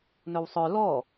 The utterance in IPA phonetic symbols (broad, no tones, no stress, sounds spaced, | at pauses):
n ɵ w sˤ œ l ɔ